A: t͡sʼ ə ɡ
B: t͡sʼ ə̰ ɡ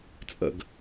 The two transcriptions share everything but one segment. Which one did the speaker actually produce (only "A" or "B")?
B